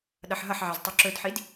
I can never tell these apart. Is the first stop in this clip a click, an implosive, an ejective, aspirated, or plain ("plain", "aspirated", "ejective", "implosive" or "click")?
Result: implosive